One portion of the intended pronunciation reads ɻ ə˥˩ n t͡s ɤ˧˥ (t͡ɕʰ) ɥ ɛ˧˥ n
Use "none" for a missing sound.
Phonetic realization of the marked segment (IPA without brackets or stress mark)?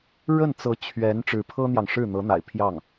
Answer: t͡ɕʰ